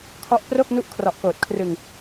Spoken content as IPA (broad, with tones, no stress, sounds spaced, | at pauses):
kʰ ɔ˦˥ ʔ p r o˥˩ k̚ n u˦˥ ʔ kʰ r ɔ˨˩ ʔ k oː˨˩ t̚ kʰ r ɯ˧ ŋ